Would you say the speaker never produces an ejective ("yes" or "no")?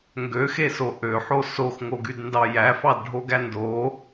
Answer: yes